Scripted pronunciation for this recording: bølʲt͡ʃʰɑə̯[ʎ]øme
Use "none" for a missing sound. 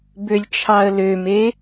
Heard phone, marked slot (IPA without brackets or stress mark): l